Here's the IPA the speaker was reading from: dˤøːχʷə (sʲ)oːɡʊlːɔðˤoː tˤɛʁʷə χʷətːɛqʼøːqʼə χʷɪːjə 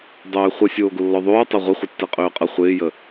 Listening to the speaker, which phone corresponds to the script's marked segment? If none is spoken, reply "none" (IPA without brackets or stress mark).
sʲ